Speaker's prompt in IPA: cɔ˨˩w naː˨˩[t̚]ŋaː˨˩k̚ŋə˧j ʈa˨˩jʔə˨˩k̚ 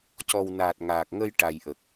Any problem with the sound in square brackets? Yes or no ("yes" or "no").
no